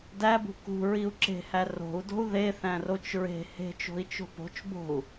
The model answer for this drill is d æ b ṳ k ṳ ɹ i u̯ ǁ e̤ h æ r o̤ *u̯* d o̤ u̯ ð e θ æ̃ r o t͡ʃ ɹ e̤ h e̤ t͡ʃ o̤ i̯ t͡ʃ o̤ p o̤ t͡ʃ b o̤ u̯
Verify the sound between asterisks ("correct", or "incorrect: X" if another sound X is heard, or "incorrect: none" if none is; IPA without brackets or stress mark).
correct